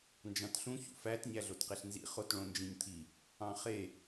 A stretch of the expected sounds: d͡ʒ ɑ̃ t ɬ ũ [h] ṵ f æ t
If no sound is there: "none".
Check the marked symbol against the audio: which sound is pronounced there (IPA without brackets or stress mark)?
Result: ç